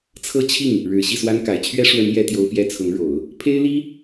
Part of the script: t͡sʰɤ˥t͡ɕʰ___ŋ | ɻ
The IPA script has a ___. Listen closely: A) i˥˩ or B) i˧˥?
A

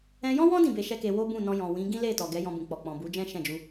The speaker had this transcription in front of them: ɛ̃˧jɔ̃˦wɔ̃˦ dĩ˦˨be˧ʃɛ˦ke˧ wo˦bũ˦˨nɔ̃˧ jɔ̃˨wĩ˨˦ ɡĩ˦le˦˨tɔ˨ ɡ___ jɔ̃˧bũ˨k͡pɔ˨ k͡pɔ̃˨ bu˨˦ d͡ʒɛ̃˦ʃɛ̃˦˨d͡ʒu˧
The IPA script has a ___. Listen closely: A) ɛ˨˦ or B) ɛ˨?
A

